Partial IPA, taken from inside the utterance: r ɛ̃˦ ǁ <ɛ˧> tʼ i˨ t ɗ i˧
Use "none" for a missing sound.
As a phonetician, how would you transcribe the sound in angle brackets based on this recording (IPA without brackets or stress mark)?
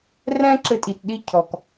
ɘ˧